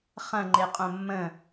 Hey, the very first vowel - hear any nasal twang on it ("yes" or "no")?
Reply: yes